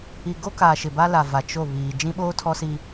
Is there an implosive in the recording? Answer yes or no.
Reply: yes